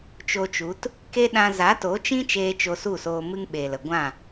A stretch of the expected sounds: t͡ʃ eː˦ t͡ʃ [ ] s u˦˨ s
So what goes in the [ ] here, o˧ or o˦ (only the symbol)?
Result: o˧